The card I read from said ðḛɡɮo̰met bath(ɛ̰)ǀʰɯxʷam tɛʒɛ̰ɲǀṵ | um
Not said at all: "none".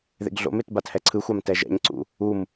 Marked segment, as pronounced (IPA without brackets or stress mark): ɛ